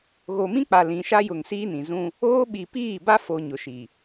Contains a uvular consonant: no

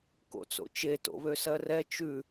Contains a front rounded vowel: yes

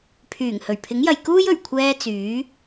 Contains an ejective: no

